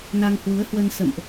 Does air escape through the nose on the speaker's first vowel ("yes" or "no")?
no